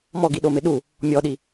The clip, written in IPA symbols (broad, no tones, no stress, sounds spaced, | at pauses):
m ɔ ɡ i ɗ o m ɪ ɗ u | mʲ ɔ ɗ i